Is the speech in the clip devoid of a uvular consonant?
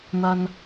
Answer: yes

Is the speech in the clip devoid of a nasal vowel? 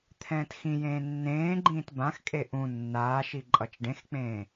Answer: no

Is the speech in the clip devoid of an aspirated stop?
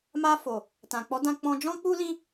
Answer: yes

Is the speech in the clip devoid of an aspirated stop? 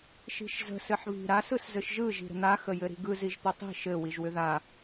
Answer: yes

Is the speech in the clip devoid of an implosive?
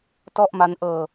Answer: yes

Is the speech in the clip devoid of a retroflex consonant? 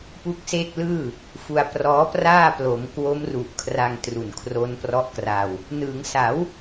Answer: yes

